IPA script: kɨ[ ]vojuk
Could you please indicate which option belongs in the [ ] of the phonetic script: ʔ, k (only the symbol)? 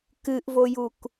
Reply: ʔ